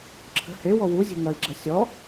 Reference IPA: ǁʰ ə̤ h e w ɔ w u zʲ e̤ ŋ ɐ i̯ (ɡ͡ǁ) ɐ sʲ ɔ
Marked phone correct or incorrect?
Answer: correct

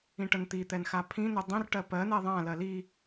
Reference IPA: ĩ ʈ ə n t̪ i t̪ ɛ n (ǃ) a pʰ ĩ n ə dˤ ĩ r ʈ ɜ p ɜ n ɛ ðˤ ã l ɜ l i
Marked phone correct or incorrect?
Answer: incorrect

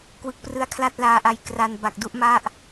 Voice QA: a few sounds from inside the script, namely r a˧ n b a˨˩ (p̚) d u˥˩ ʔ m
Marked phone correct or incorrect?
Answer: incorrect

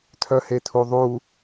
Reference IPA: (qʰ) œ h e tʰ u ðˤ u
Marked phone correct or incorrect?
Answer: incorrect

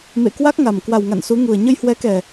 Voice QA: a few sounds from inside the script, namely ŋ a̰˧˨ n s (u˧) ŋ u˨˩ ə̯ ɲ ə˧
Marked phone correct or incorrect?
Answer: incorrect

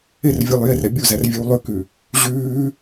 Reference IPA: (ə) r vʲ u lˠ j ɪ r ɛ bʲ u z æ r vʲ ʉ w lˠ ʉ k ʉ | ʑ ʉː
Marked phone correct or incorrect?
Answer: incorrect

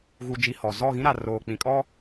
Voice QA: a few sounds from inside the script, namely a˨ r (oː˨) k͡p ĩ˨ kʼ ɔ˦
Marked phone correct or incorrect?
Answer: correct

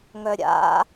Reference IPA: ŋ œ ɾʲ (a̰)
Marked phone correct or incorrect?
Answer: correct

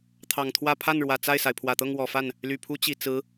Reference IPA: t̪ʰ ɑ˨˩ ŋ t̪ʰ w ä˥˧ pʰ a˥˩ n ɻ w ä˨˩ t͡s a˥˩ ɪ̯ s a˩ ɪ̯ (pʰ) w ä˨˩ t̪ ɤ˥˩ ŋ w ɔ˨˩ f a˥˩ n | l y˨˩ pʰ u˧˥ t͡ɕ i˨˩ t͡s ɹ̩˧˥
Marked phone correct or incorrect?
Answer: correct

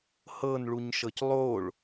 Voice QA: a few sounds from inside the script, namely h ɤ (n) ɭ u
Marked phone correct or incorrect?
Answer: correct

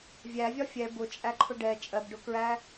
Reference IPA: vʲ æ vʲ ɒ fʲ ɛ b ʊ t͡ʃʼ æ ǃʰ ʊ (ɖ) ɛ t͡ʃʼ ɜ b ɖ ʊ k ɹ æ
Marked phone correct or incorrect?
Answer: correct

